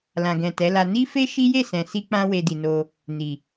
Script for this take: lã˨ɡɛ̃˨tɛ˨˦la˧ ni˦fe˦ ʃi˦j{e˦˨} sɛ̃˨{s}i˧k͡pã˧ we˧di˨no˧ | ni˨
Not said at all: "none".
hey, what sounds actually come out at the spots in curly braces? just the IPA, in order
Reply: e˦˨, s

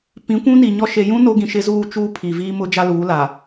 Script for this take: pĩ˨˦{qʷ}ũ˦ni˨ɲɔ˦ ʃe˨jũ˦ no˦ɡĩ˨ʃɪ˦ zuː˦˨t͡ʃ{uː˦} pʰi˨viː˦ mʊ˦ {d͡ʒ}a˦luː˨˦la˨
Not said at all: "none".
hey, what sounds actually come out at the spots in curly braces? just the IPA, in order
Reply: kʷ, uː˦, d͡ʒ

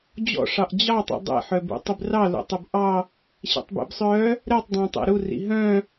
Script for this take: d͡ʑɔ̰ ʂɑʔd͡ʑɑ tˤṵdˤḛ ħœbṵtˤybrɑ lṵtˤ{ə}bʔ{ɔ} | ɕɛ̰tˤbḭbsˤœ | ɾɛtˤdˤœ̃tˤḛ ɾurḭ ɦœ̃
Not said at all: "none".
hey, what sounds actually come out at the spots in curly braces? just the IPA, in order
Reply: œ, ɑ

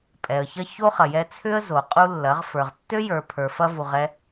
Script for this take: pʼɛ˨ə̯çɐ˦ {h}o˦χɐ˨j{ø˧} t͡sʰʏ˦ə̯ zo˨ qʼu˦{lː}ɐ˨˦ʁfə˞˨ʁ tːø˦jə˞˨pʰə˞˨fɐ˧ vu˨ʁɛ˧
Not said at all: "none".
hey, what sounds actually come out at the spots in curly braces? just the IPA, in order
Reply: ç, ɛ˧, lː

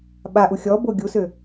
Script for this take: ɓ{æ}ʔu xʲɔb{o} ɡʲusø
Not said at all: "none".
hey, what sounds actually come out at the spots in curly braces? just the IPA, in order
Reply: a, o

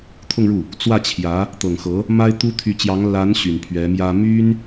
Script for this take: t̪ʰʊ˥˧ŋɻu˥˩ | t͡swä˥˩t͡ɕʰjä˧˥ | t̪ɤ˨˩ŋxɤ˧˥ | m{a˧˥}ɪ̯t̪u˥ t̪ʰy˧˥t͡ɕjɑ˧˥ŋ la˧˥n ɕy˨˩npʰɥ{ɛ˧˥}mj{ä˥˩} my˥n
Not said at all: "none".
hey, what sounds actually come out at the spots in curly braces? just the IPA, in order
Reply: a˥, ɛ˧˥, ä˥

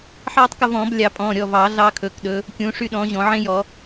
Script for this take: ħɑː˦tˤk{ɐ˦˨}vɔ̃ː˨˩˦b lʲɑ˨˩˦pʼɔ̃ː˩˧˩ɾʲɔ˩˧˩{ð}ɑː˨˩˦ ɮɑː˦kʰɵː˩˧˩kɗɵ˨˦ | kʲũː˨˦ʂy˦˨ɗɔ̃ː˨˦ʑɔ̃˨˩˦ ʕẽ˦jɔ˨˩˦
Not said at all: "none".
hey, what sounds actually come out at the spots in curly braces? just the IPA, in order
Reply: ɐ˦˨, v

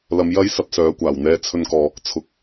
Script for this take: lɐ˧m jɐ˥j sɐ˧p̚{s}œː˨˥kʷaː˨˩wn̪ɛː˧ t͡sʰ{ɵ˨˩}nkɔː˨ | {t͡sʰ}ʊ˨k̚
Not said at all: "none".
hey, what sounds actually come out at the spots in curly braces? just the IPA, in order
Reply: s, ɵ˧, t͡sʰ

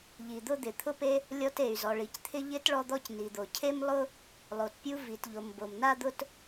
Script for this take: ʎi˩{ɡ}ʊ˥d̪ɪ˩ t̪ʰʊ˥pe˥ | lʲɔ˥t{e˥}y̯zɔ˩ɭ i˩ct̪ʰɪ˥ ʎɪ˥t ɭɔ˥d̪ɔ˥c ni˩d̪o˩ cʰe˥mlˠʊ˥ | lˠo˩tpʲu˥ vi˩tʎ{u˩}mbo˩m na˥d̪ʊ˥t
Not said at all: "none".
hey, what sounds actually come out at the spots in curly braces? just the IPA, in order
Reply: d̪, e˩, o˩

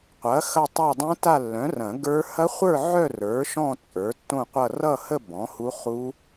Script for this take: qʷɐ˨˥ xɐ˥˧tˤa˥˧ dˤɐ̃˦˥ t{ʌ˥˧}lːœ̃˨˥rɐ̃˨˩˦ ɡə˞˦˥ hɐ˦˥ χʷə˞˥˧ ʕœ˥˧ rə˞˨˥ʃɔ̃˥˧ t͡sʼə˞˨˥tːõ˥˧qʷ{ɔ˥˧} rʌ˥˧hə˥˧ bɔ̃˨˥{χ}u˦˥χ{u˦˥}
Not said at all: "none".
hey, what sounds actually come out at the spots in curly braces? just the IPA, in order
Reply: a˥˧, ʌ˥˧, h, u˦˥

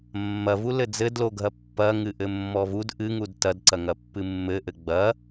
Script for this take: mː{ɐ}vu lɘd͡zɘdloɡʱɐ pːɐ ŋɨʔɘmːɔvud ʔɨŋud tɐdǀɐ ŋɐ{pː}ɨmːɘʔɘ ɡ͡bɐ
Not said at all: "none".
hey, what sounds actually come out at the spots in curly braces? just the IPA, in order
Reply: ɐ, pː

